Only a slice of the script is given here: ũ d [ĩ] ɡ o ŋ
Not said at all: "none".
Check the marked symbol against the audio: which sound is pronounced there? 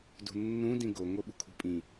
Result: ĩ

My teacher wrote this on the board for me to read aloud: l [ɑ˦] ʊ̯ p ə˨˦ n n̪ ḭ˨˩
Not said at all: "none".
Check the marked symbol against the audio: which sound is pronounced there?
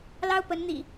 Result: ɑ˦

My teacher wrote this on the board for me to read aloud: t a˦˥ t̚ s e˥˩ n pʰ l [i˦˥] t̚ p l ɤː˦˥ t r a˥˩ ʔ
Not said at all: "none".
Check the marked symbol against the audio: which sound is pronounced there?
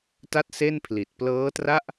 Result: i˨˩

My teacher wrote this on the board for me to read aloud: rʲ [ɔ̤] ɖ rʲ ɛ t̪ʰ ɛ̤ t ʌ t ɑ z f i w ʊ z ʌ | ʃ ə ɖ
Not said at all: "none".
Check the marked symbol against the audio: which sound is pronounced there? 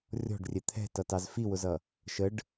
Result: ɔ̤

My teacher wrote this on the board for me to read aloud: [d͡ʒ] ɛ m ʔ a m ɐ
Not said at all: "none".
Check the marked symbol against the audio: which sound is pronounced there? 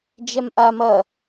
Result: d͡ʒ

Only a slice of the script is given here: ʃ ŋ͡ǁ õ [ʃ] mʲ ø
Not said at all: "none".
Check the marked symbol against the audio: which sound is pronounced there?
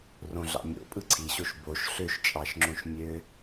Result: ʃ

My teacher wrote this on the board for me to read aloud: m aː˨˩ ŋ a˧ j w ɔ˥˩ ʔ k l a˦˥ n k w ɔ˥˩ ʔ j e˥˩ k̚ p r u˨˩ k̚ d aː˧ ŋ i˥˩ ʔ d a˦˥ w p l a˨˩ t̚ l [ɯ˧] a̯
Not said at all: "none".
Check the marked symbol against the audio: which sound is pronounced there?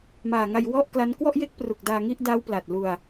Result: u˧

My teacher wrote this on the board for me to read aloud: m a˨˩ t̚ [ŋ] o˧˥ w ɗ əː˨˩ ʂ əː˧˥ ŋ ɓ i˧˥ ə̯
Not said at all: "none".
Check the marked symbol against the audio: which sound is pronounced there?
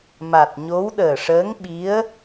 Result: ɲ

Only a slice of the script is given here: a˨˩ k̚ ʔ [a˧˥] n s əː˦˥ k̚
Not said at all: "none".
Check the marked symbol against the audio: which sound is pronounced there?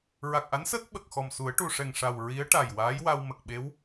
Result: a˧˥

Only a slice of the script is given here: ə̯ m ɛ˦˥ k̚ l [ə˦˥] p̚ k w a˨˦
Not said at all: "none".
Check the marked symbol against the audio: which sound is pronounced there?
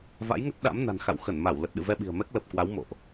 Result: ə˨˩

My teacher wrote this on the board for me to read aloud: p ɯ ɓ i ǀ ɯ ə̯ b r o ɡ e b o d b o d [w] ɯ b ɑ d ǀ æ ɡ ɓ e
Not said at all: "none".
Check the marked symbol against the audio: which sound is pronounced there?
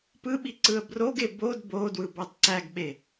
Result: w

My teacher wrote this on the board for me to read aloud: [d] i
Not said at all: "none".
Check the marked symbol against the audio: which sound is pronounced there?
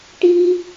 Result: ʈ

